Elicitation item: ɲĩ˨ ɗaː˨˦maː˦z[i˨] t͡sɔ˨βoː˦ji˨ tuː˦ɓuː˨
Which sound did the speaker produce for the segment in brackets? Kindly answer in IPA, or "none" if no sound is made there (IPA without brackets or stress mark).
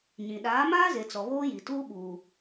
e˨